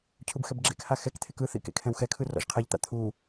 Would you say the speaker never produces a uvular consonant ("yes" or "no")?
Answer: no